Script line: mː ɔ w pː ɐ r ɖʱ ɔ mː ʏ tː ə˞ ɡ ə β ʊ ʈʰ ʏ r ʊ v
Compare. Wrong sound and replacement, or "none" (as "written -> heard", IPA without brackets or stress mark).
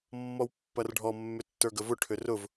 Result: β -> v